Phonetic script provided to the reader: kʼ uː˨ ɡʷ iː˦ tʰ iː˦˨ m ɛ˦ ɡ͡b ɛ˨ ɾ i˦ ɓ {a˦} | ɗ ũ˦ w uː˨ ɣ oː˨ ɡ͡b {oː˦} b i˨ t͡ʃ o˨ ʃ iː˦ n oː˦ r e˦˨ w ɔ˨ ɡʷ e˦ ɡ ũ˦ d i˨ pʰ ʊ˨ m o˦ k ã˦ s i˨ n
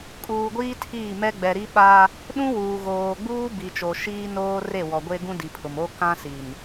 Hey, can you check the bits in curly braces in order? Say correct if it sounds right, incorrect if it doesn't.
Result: correct, incorrect: uː˦

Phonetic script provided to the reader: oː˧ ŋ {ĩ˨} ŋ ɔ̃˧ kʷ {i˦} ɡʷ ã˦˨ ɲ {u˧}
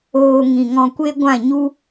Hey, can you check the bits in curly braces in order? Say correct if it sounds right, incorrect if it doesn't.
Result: correct, incorrect: e˦, incorrect: u˦

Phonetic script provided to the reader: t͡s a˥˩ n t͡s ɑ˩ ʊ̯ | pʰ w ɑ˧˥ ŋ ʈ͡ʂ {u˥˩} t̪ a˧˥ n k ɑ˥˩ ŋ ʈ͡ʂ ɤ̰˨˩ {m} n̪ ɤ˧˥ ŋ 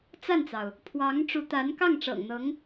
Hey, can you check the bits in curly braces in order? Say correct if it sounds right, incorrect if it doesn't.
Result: incorrect: u˧˥, incorrect: ŋ

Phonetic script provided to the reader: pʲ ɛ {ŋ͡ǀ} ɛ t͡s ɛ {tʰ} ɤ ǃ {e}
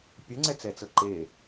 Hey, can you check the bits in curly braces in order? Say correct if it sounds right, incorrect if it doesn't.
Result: correct, incorrect: t͡s, correct

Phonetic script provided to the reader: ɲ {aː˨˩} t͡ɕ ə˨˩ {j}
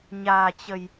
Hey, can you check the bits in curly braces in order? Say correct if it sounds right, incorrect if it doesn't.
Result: correct, correct

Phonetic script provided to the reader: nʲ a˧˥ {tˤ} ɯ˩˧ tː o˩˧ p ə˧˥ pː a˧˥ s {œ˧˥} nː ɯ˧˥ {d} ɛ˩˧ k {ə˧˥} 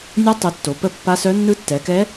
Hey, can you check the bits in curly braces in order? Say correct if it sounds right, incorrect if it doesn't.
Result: correct, correct, incorrect: tː, incorrect: ɛ˧˥

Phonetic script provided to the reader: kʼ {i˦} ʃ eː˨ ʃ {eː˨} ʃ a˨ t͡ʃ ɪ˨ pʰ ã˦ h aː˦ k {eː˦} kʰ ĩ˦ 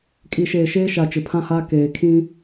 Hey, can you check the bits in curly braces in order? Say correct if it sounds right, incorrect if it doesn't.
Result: incorrect: i˨, incorrect: eː˦, incorrect: eː˨

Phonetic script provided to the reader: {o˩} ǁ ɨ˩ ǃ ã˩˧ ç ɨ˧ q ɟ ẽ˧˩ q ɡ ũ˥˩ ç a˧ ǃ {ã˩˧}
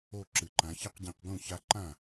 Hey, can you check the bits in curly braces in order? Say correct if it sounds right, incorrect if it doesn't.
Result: incorrect: o˧˩, incorrect: ã˥˩

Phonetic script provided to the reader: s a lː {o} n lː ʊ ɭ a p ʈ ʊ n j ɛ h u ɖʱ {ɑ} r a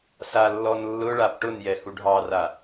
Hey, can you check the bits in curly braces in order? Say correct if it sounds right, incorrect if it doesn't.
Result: incorrect: ɔ, correct

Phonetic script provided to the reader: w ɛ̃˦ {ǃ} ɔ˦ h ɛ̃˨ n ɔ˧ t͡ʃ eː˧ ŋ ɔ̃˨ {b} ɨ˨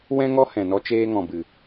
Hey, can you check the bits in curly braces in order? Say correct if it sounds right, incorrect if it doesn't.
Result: incorrect: ŋ, correct

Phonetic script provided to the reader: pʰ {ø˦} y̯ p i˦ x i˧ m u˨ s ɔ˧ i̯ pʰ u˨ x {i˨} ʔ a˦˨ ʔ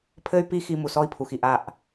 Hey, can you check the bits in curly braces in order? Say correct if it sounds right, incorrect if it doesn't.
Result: incorrect: ɘ˦, correct

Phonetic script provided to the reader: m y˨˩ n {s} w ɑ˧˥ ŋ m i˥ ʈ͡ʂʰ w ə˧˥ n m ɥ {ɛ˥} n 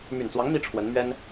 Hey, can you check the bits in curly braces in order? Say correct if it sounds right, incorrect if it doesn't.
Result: incorrect: t͡s, correct

